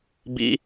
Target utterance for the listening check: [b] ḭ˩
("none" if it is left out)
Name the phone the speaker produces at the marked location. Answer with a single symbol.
b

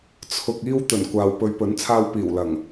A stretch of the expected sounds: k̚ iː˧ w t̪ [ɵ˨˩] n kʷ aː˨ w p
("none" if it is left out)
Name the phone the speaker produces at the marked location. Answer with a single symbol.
ɵ˨˩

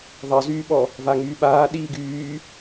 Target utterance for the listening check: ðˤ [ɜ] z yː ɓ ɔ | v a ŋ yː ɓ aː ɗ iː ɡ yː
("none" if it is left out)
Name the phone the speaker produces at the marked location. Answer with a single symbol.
ɜ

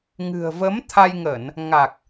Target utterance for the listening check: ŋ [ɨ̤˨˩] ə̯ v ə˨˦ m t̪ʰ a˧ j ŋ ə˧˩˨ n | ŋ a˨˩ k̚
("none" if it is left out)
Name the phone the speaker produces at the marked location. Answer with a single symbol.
ɨ̤˨˩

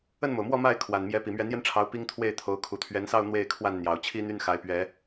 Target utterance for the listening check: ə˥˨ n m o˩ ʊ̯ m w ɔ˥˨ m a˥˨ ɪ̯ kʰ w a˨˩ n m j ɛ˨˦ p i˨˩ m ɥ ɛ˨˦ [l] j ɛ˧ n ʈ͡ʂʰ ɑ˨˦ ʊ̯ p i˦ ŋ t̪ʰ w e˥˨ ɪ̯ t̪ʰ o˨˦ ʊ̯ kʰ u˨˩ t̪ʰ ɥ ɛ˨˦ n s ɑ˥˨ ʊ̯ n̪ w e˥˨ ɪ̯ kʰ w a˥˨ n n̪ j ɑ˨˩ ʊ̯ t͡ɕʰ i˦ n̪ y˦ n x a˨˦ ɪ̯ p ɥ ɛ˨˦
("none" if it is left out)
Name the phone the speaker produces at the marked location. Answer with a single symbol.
n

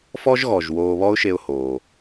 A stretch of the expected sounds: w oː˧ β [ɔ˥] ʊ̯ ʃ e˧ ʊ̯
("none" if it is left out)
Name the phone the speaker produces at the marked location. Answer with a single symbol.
ɔ˥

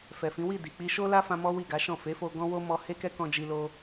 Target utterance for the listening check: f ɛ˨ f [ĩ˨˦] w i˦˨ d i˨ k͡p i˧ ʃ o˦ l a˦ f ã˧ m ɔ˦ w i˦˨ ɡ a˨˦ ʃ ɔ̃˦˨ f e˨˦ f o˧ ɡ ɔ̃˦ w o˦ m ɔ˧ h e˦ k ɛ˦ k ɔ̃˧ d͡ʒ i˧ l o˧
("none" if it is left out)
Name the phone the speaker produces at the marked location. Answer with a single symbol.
ĩ˨˦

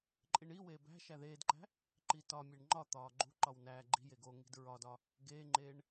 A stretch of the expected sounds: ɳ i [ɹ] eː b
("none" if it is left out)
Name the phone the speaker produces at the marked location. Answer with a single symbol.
w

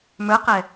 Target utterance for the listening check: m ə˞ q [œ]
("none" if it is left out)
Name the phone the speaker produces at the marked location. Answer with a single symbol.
ɛ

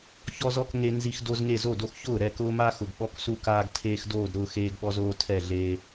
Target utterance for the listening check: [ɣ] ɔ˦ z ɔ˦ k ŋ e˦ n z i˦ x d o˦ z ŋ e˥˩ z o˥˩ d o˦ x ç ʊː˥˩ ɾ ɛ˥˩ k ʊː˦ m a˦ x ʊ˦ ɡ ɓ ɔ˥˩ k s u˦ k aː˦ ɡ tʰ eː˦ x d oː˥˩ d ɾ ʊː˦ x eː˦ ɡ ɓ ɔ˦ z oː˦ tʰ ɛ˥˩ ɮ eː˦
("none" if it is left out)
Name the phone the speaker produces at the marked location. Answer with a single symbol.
ç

